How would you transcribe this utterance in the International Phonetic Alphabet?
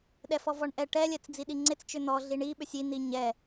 ɗ ɛ f ɔ v ɔ ɳ ʔ ɛ ʈ ɛ lʲ ɛ t͡s d͡z i ɗ i ŋ͡ǀ e t͡s t͡ʃ ʏ n̪ ɔ ɮ i ɳ i ɓ ʏ sʲ i n̪ i ɲ ɛ

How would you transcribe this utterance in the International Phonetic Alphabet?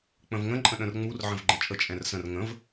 k͡p ə̃ v ŋ ə̃ ǃʼ ə̃ ɗ ə̃ r ŋ͡m u r ʕ ə̃ v ɡ͡ǃ ə̃ t͡ʃʼ ə t͡ʃʼ ɛ̃ r s ə̃ r ŋ ə̃ v

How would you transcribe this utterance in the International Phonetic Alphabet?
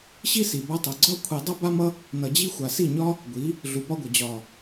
ɕ i˦ s i˨ b a˧ tˤ ʌ˨ ɡ͡ǀ ɒ˦ kʷʰ i˧ dˤ ʌ˦ b a˦ m ʌ˦ | n ʌ˨ d͡ʑ i˦ xʷ a˨ s i˦˨ ɲ ɒ˦ | ɡʷ i˨˦ | ɮ u˨ p ɒ˧ ɡʷ ʌ˨ d͡ʑ ɒ˨

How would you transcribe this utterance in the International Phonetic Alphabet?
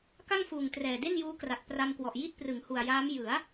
k a˥˩ ŋ f uː˨˩ ŋ t r ɛː˨˩ d e˥˩ n j uː˦˥ k r a˨˩ t̚ p r a˧ m k w ɔ˨˩ ʔ j i˥˩ t̚ p r ɯ˩˦ ŋ h u˨˩ a̯ j aː˦˥ m j ɯ˩˦ a̯

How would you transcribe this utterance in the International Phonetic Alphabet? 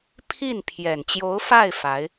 pʰ i˥˩ n pʰ j ɛ˨˩ n t͡ɕ j o˧˥ ʊ̯ f a˥˩ ɪ̯ f a˧˥ ɪ̯

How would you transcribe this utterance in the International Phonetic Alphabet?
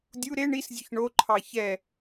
dʲ u ɾ e ɳ i s zʲ o ç ɳ o ǃʰ ɑ ç ɛ

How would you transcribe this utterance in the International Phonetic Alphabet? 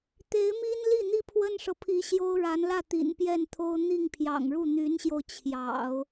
t̪ e˧˥ ɪ̯ m i˥ n l i˥˩ n̪ i˥ pʰ w ə˥ n ʂ ɤ˨ pʰ i˧˥ ɕ j o˥ ʊ̯ ɻ a˧˥ n l ä˥˩ t̪ ḭ˨˩ n p j ɛ˥˩ n t̪ʰ o˥ ʊ̯ n̪ i˥˩ ŋ pʰ j ɑ̰˨˩ ŋ ɻ u˥˩ n̪ y˧˥ n ɕ j o˧ ʊ̯ t͡ɕʰ j ɑ̰˨˩˦ ʊ̯

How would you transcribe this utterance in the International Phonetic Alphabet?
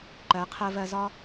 ǃ ɜ˨˦ qʰ ɜ˧ v ɜ˧ z ɒ˦

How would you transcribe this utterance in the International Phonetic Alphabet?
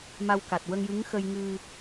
m a˧ w k a˨˩ t̚ w ə˧ ŋ j ɨ˧˥ ŋ x ə˧ j ŋ ɨ˧

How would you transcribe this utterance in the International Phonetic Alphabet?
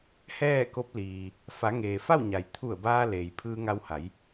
h ɛː˥˨ k o˧˥ p̚ l iː˩ | f a˩˧ ŋ eː˩ f a˥˨ w ɲ a˩ j t̪ʰ u˧˩ ə̯ b aː˧ l eː˩ j pʰ ɯː˧ ŋ a˧ w h a˩˧ j

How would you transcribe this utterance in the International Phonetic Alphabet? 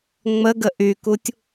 ŋ͡m ə ɡ ə ʔ y k u tʲ

